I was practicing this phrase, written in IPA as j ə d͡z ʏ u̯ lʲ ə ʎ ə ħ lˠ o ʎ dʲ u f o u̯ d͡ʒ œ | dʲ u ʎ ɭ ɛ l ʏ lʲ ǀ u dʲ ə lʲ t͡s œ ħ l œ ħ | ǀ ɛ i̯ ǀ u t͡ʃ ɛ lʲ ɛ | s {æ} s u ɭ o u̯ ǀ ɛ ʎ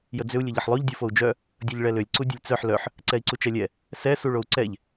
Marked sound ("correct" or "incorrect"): incorrect